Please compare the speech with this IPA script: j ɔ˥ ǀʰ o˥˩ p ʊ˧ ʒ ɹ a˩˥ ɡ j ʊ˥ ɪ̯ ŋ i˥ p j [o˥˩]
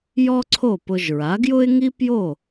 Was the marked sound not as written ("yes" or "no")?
no